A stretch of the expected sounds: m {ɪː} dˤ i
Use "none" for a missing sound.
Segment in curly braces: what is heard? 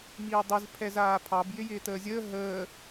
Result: iː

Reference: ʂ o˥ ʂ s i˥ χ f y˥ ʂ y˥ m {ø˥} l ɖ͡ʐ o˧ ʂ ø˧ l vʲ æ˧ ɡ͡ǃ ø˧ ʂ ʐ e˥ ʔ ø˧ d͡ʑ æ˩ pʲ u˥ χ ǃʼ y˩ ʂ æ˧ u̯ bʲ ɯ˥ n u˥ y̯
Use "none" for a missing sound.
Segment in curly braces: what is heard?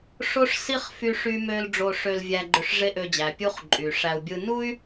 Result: ø˥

